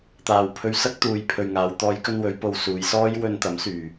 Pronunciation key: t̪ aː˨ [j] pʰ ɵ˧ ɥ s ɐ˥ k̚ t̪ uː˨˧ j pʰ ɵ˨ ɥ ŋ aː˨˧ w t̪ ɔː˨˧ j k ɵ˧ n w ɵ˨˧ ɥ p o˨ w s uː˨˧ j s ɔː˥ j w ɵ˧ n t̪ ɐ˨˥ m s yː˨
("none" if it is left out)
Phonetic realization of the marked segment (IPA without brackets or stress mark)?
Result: w